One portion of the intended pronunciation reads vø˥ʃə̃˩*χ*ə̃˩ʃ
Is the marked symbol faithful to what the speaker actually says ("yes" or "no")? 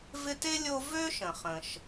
yes